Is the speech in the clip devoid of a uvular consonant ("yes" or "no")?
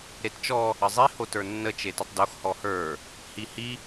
yes